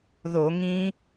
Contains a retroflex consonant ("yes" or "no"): no